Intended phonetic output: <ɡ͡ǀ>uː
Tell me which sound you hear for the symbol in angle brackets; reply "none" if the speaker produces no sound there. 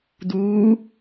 d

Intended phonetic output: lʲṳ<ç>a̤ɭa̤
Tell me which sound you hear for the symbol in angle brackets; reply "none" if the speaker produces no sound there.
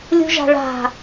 ʒ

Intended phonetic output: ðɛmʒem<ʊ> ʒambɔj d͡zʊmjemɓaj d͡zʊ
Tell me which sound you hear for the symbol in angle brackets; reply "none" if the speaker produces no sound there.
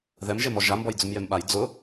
ɔ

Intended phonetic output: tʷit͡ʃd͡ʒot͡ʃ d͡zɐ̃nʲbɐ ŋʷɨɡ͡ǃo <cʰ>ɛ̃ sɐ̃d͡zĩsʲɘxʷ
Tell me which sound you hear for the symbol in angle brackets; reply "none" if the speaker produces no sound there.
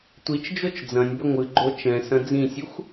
t͡ʃ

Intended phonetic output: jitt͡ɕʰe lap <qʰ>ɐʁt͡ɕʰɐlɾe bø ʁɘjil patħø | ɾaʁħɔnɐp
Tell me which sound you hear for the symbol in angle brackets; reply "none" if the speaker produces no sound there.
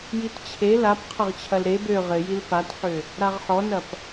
qʰ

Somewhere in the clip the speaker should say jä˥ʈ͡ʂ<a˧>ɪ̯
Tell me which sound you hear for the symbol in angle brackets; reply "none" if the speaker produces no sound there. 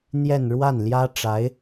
a˧˥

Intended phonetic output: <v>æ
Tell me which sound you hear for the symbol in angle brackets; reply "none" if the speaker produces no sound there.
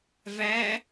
v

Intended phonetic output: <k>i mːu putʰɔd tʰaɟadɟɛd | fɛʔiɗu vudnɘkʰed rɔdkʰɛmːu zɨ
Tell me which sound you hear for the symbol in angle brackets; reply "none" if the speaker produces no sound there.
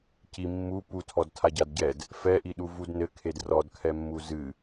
c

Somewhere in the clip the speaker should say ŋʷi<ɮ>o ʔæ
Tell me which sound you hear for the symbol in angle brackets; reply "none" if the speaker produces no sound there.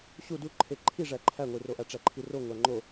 r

